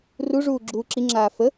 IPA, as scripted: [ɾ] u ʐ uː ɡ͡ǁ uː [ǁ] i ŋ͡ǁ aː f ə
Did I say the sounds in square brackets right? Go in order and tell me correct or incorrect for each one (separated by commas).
incorrect, correct